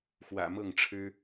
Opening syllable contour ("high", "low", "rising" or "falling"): low